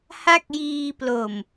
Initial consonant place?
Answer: glottal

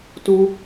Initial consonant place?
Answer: alveolar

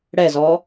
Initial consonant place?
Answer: retroflex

